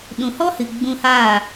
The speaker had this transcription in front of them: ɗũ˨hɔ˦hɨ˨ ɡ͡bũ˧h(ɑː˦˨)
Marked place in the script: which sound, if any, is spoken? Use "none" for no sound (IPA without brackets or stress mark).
aː˦˨